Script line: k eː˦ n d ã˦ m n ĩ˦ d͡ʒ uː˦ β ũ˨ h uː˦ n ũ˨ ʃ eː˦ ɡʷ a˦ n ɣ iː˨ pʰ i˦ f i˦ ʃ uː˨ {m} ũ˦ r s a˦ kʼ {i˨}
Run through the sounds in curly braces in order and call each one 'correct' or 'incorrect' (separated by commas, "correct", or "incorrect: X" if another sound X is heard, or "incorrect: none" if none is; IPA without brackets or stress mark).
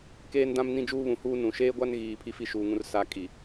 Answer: incorrect: ŋ, correct